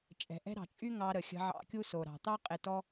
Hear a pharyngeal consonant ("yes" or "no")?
yes